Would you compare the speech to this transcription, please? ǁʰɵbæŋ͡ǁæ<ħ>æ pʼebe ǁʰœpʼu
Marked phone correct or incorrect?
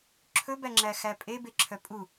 incorrect